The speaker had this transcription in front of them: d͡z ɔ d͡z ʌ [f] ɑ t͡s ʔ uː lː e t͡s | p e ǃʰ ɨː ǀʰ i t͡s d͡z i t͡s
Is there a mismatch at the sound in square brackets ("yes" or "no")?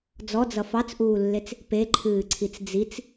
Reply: no